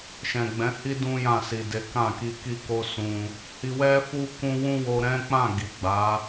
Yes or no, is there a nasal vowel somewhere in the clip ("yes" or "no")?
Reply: yes